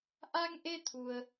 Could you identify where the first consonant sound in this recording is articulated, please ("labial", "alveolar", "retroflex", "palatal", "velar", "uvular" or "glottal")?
glottal